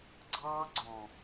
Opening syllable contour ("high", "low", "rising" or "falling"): high